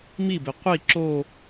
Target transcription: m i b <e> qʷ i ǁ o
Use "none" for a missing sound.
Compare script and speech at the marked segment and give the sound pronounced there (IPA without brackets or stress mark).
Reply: e